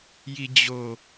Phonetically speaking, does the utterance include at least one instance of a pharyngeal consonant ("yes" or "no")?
no